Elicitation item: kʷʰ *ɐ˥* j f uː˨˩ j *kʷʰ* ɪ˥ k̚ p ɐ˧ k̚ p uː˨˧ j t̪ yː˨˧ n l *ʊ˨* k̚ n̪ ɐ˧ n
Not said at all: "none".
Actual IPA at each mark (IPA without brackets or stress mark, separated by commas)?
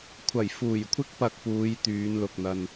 ɐ˨˩, kʷʰ, ʊ˨